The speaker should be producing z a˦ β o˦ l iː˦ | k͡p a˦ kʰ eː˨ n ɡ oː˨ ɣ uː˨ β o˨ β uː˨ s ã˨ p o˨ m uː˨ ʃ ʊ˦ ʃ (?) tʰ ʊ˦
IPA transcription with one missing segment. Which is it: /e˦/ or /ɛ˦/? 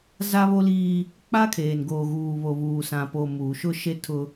e˦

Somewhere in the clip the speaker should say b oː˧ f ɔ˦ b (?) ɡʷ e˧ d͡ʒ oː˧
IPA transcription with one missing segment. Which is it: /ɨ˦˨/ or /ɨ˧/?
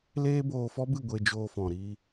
ɨ˦˨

